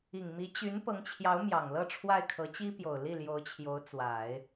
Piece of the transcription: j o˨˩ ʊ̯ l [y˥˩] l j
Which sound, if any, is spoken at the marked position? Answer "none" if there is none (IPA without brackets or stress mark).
i˥˩